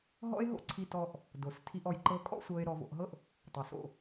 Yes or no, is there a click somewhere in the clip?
yes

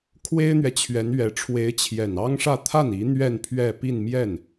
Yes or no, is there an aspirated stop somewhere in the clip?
yes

